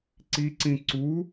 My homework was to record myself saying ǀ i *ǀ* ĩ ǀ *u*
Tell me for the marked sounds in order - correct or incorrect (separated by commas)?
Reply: correct, correct